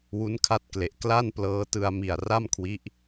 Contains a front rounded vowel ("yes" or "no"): no